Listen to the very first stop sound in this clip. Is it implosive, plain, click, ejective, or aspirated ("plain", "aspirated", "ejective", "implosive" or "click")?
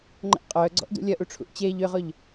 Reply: click